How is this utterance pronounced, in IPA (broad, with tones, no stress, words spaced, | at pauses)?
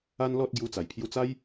a˦nlɔ˦t̚ ɡju˧t͡sa˨˩jpʰju˧t͡sa˦j